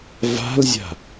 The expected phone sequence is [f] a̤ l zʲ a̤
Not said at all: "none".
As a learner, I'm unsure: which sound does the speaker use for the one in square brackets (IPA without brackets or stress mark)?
v